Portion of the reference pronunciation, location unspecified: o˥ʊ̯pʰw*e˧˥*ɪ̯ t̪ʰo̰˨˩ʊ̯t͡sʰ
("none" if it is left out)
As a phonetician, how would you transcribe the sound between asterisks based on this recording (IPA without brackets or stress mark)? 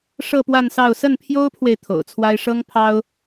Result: e˨